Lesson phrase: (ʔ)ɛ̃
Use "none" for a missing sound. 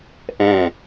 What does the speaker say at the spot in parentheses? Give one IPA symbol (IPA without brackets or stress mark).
ʔ